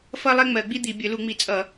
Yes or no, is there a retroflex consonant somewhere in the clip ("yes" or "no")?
no